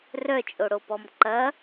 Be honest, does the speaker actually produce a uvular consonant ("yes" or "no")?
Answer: no